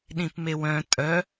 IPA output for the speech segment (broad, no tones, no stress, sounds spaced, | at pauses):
ɗ ĩ p m e w œ̃ tʼ œ